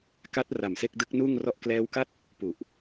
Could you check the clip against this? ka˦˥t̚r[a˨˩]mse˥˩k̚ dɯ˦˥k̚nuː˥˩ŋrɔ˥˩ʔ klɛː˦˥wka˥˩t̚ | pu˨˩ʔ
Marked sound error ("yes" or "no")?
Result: no